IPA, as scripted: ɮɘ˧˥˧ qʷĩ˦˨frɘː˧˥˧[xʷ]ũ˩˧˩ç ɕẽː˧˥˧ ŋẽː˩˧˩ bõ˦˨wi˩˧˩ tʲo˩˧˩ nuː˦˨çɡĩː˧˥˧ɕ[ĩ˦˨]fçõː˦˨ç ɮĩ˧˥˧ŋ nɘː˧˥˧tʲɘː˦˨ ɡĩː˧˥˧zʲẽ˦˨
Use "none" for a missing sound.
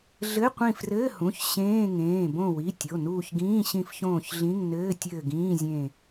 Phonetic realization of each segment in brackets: h, ĩ˦˨

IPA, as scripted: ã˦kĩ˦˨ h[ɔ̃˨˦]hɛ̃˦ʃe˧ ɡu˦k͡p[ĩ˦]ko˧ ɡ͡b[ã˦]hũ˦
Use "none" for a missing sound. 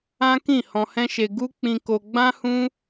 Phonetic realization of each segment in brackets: ɔ̃˧, ĩ˧, ã˦

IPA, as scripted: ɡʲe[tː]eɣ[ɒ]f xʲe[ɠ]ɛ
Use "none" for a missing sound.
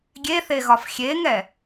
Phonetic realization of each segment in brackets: θ, ɒ, ŋ

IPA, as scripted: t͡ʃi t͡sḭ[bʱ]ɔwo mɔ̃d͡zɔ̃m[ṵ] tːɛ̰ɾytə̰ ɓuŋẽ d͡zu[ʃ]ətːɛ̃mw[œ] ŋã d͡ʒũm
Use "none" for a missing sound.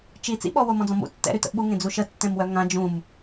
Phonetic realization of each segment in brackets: ɓ, ṵ, ʃ, œ

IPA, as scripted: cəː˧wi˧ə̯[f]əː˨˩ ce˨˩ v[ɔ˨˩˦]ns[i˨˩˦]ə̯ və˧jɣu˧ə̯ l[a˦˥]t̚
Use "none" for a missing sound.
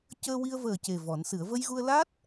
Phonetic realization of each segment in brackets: v, ɔ˨˩˦, ɨ˨˩˦, a˦˥

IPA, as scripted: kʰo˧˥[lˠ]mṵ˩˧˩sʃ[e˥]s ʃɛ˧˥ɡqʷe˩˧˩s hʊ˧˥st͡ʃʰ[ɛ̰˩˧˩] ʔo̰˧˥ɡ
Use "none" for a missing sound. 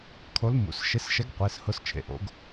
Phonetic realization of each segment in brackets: l, e˧˥, ḛ˩˧˩

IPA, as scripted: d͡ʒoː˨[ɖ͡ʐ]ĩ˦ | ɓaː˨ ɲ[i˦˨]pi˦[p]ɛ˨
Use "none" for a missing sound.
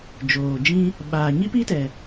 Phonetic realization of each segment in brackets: d͡ʒ, i˦, t

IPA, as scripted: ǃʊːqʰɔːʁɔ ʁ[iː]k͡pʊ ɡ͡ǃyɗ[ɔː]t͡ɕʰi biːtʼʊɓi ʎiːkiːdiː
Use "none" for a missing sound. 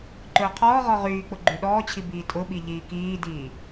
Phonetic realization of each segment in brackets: yː, ɔː

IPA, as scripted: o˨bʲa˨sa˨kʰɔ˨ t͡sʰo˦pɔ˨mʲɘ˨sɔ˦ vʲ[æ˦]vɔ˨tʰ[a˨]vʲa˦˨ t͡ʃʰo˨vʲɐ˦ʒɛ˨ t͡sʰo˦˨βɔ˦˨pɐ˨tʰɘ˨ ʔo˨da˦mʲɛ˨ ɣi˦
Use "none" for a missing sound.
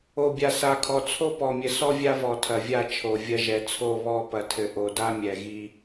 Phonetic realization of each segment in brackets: a˦, ɐ˨

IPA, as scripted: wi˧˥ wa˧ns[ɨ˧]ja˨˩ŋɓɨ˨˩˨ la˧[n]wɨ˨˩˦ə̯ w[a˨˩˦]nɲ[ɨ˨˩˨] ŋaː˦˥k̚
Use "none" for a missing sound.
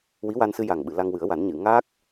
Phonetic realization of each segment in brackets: ɨ˧, ŋ, a˨˩˦, ɨ˨˩˨

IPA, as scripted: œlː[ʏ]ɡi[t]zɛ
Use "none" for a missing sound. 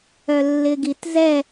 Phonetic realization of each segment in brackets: ɪ, t

